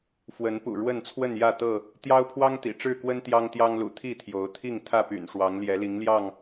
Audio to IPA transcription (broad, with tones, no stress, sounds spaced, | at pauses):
f w ə˨˦ n p ṵ˨˩ ɻ w ə˥˨ n t͡sʰ w ə˥˨ n j ä˥˨ t̪ ɤ˥˨ | t̪ j ɑ˦ ʊ̯ pʰ w ɑ˦ ŋ t̪ ḭ˨˩ ʈ͡ʂ ɻ̩˥˨ k w ə˦ n t̪ j ɑ˦ ŋ t̪ j ɑ˦ ŋ l ṵ˨˩ t̪ʰ i˥˨ t̪ʰ j o˨˦ ʊ̯ t̪ʰ i˥˨ ŋ t̪ʰ ä˥˨ p y̰˨˩ n ʂ w ɑ˨˦ ŋ l j ɛ˨˦ l i˨˦ ŋ l j ɑ˥˨ ŋ